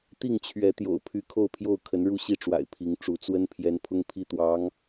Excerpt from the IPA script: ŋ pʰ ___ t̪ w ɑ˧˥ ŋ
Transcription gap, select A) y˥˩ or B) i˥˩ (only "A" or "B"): B